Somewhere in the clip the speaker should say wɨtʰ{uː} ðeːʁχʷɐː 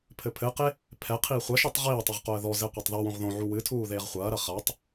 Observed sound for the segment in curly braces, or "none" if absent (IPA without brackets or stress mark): uː